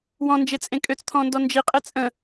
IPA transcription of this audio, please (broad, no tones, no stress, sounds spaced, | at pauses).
w ɔ̃ n d͡ʒ e t͡sʼ ẽ kʼ ø t͡s t̪ʰ ɔ̃ n d ɔ n d͡ʒ i qʼ e t͡sʼ ə̃